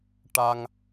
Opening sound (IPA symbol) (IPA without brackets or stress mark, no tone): ʈ